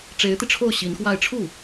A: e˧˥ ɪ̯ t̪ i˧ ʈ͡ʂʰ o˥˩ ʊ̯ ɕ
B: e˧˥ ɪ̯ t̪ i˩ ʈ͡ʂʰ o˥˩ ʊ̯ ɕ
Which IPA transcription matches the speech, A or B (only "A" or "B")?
A